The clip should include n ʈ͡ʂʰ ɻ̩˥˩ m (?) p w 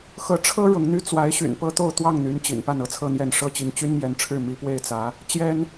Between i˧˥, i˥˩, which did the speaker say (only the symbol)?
i˧˥